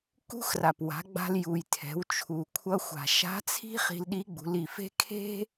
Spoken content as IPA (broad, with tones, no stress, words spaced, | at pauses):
kṳ˥xra˩pwa̤˩˧ɡ͡ba̤˧l ju˩jtʰɛ̤˩˧wt͡ʃʰu˩ kʷʰʌ˧xʷa̤˩ ʃa̤˧˥t͡sʰi̤˥ χi̤˧lɗi˧˥ɡ͡bṳ˩˧l i˩fe̤˥ kʰe̤˥